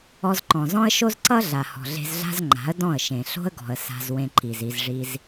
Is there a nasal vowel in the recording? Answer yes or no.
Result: yes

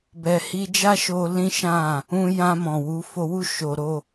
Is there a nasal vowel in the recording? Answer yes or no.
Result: yes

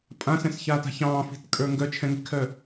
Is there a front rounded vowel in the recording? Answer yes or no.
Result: yes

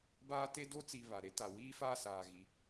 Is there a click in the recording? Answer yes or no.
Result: no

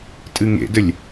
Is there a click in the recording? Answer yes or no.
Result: no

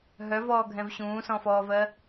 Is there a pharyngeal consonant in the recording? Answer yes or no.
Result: no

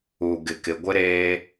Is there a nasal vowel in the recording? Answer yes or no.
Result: no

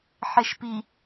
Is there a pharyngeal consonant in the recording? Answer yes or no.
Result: yes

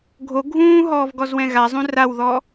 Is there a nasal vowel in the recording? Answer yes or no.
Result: yes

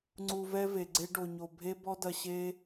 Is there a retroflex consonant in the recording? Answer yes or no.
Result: yes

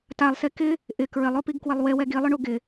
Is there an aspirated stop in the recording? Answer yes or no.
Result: no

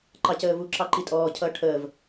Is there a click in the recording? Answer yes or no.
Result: yes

